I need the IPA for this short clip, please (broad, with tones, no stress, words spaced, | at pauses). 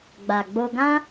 ɡ͡ba˨ɡ͡bo˧ɡã˦